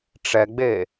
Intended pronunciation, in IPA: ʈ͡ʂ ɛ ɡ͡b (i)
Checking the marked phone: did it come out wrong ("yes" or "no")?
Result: yes